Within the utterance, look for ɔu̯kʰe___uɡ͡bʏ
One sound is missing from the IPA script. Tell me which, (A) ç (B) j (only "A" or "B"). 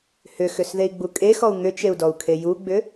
B